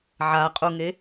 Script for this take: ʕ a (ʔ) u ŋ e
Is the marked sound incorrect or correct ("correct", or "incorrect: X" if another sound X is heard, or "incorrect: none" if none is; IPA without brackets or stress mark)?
incorrect: qʼ